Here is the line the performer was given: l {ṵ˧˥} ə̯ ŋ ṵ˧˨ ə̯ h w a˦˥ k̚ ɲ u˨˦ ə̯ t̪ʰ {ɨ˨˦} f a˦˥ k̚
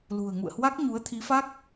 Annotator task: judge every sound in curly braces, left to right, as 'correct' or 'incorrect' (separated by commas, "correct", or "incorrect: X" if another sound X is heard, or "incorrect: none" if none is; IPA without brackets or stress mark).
incorrect: ṳ˨˩, incorrect: i˨˦